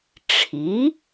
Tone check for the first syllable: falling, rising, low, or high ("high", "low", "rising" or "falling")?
rising